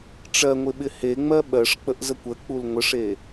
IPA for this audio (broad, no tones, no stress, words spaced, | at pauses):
ʈ͡ʂɜŋʷɪɓɪ heŋ͡mɜ ɓɜʂk͡pəʔzəkʷ ək͡pul ŋʷəʂe